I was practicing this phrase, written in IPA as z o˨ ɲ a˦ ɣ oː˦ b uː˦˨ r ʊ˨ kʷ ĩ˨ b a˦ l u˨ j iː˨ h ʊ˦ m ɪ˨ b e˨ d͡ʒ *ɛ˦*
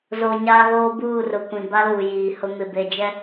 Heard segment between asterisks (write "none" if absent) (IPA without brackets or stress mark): ɛ˦